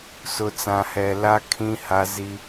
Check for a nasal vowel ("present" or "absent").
present